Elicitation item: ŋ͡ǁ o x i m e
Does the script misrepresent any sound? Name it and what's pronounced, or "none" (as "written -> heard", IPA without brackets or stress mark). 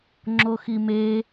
none